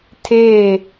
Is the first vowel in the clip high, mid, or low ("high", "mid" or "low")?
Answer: mid